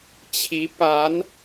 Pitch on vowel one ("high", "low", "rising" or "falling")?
rising